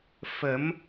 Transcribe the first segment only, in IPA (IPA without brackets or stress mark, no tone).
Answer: f